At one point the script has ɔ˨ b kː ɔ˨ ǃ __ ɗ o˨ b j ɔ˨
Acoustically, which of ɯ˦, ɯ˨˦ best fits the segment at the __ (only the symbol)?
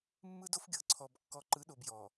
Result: ɯ˨˦